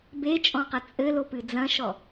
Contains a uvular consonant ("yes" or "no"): yes